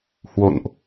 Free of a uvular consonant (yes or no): yes